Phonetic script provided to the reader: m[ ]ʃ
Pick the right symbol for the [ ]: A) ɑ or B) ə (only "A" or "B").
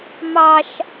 A